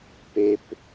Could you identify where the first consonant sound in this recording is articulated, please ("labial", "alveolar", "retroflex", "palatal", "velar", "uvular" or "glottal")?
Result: labial